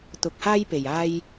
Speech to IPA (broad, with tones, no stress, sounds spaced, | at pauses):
t̪ ʊ˧ k̚ h aː˥ j p e˨ j aː˧ j